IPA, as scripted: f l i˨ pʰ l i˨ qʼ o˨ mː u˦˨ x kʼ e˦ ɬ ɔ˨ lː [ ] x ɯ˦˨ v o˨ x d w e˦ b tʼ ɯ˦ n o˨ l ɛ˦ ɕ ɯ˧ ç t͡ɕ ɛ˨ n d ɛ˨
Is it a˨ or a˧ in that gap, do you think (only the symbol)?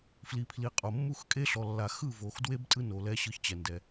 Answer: a˨